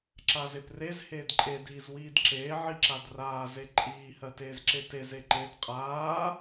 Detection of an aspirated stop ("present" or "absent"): absent